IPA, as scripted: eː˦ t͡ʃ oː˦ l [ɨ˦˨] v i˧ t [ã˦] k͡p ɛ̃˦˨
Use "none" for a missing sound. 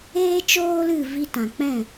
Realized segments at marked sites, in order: ɨ˦˨, ã˨

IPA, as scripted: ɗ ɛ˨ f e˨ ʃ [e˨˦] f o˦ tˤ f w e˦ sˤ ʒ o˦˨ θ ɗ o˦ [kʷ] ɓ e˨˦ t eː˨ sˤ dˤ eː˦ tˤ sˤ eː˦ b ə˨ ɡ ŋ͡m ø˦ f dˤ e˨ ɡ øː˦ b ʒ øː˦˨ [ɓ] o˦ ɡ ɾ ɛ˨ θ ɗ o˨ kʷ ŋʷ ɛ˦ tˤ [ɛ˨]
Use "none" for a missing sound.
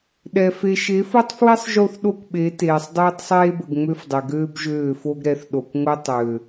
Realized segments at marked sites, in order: e˨˦, kʷ, f, ø˨

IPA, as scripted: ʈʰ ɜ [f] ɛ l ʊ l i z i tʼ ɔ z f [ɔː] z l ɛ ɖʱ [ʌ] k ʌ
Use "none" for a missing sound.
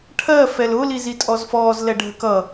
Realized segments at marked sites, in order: f, ɔː, ə

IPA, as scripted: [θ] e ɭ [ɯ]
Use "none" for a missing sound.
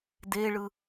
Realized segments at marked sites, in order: d, ɯ

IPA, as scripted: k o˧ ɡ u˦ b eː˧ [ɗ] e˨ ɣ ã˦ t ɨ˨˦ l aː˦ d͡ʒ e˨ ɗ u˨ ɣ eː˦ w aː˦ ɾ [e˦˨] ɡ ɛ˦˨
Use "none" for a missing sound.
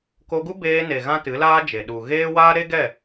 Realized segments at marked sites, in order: n, e˦

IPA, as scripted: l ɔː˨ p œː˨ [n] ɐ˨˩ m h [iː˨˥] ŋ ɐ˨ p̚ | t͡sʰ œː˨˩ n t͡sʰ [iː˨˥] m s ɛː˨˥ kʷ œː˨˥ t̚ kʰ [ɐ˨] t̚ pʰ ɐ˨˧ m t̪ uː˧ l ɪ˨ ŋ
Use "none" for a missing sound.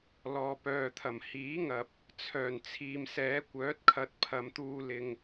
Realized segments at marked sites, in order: t̪ʰ, iː˨˥, iː˨, ɐ˧

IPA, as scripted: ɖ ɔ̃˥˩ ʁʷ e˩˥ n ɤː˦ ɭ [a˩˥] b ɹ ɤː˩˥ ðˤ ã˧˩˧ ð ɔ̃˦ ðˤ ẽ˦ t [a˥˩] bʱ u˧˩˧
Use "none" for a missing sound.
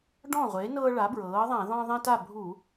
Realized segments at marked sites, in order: a˩˥, a˥˩

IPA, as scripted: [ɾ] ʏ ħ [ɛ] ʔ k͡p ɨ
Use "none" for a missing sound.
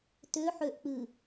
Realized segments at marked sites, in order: t, ø

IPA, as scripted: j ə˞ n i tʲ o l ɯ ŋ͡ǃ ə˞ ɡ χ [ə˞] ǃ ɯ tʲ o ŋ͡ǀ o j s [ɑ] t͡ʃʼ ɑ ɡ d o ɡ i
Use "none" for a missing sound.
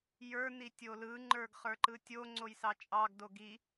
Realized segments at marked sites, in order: ə˞, ɑ

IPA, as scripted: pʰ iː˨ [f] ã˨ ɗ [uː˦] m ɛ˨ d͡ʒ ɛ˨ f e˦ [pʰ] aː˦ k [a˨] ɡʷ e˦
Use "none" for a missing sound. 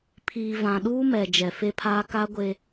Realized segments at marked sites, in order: v, uː˦, pʰ, a˦

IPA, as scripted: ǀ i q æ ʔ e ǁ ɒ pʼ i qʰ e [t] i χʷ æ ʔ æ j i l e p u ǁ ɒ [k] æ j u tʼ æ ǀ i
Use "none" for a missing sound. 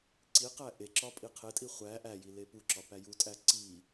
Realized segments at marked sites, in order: tʼ, p

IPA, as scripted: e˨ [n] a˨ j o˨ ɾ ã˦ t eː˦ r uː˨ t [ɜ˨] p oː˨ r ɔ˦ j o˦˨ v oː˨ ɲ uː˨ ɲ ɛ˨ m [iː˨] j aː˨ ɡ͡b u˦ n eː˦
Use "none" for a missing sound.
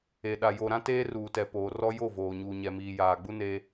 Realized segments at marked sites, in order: ɗ, ɛ˨, iː˨

